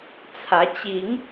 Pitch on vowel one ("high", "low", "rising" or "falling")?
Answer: rising